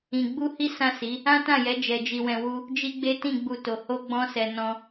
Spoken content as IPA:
ĩ˧ ɡ͡bu˦hi˦ sã˦˨si˨˦ | ã˦tã˦˨jɛ˨˦ d͡ʒɛ˧d͡ʒi˧wɛ̃˧wu˦ | d͡ʒi˦ɡ͡be˦ tĩ˦˨ ɡ͡bu˧to˨ ho˧ɡ͡bɔ̃˧sɛ˨ nɔ̃˧

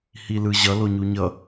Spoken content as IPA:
hilɯʑʌ loɲuɲʌ

